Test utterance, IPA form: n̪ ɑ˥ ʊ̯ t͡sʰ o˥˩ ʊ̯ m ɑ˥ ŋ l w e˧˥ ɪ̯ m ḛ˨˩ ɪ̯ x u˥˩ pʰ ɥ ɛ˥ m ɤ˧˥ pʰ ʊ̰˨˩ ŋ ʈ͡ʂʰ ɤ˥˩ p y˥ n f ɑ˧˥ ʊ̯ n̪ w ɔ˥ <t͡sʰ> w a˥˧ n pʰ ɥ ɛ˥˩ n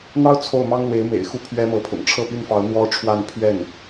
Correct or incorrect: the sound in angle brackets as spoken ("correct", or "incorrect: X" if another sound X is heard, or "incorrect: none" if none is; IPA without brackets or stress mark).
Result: incorrect: ʈ͡ʂʰ